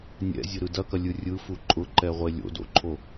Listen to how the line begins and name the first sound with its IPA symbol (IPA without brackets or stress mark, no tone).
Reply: nʲ